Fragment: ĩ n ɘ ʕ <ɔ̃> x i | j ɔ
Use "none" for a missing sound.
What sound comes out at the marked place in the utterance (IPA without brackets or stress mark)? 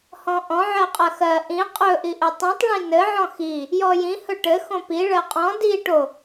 ɔ̃